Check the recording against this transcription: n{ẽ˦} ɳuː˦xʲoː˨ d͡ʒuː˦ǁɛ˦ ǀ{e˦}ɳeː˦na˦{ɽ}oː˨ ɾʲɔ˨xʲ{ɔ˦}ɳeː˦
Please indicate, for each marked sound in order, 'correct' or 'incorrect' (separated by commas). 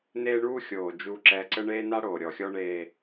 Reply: incorrect, incorrect, correct, correct